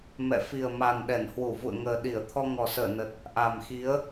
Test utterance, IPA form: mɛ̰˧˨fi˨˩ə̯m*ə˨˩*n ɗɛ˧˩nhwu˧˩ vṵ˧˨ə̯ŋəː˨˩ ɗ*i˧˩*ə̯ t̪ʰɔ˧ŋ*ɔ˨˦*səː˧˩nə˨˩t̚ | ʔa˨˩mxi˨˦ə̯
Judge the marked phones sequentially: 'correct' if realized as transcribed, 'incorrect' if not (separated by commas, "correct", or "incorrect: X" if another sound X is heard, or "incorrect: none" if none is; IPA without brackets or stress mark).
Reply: incorrect: a˨˩, correct, incorrect: ɔ˨˩